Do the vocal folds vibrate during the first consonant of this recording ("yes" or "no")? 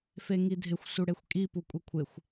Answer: no